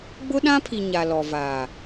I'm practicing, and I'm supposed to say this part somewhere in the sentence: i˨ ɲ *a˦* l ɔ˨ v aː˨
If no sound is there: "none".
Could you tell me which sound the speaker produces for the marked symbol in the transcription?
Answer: a˨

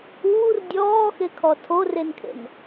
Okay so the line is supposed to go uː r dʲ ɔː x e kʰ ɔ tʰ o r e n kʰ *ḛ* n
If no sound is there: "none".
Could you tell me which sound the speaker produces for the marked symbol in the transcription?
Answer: ḛ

